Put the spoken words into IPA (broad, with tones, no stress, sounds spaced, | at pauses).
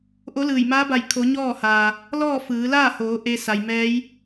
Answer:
ʔ o˧˥ l ɯː˧˩ j m aː˧˥ b a˧˩ j kʰ o˩˧ ɲ ɔː˥˨ h aː˩ | l ɔː˥˨ f ɯː˩˧ l aː˥˨ h oː˩˧ ʔ e˧ s a˩ j m ɛː˧˥ j